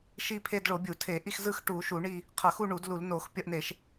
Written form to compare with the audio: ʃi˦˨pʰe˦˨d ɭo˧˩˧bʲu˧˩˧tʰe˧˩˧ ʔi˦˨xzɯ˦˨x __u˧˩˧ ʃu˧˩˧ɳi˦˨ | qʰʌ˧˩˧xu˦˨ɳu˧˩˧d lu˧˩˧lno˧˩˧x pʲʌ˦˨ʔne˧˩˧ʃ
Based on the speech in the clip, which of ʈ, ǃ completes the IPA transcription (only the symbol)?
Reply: ʈ